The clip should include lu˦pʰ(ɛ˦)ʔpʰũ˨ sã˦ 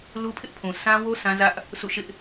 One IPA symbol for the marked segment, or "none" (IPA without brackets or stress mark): ɪ˦